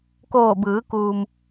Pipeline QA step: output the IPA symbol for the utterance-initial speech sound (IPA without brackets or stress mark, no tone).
k